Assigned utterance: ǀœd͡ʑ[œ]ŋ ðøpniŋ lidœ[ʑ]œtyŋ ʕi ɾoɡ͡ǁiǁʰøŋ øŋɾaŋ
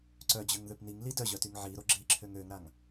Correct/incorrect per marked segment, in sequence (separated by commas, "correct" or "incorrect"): incorrect, correct